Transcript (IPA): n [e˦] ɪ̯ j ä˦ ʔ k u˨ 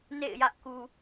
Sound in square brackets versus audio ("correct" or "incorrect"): incorrect